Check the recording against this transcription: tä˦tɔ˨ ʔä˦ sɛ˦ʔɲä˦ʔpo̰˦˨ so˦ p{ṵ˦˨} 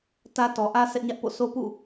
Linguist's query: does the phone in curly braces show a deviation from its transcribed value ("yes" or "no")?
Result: no